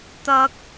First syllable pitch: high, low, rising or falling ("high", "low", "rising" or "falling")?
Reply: high